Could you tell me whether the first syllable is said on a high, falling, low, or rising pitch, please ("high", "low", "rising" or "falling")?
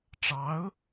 rising